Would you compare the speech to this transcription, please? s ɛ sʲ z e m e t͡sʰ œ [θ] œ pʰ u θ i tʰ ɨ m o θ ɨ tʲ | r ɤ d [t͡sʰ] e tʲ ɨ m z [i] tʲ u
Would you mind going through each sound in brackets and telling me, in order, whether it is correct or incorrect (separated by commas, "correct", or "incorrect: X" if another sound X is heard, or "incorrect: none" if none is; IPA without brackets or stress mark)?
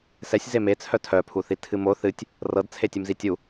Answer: incorrect: tʰ, correct, correct